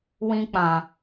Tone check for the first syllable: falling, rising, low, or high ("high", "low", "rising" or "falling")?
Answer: high